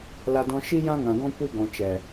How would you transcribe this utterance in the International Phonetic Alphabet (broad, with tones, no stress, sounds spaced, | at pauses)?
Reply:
l a˧ d ɔ̃˧ ʃ i˦ j ã˦ ŋ ã˨ ɡ ɔ̃˦ kʷ i˧ ɡ ɔ̃˨ t͡ʃ ɛ˨